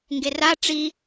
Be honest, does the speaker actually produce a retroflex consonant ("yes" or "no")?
yes